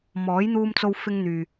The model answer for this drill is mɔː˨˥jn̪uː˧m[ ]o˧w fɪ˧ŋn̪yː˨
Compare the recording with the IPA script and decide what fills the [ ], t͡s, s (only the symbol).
t͡s